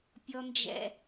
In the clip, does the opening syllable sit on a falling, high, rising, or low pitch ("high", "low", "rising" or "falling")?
high